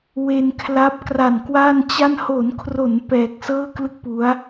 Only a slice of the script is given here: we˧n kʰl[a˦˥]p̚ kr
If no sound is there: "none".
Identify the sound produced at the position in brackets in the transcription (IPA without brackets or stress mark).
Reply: a˦˥